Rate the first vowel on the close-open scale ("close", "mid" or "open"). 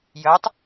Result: mid